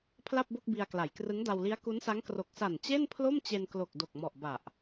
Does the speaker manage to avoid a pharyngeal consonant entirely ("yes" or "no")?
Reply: yes